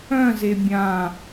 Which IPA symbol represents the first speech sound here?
œ̃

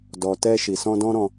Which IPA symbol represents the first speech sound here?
d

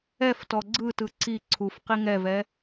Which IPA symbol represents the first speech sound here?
ɛ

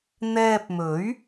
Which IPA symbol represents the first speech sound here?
n̪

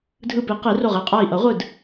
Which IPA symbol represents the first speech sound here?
dʱ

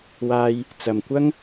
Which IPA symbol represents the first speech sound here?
w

